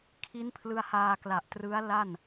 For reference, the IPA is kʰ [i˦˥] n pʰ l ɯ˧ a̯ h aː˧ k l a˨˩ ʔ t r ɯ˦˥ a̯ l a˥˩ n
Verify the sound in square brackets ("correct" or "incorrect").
correct